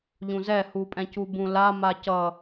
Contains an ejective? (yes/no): yes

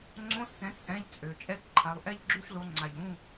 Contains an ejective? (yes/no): yes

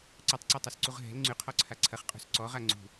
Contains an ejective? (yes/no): yes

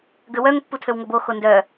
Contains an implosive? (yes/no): no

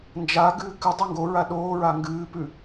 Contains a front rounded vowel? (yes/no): no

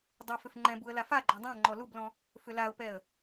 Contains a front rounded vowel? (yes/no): yes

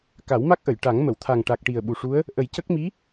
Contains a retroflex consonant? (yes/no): yes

